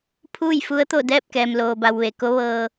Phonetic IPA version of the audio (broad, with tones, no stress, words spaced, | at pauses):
pʰuː˥˨jfu˧˥ə̯t̪o˥˨ dɛː˥˨p̚kɛː˩mloː˩ba˩w ʋe˩ko˧˥ ʋɤː˧